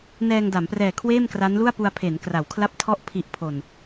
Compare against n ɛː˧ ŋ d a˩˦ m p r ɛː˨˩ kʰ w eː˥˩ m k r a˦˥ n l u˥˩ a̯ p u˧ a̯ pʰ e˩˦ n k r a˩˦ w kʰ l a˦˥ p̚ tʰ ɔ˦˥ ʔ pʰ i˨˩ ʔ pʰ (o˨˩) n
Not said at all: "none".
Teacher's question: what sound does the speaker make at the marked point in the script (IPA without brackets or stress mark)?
o˨˩